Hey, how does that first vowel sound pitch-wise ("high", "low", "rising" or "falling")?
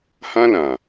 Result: high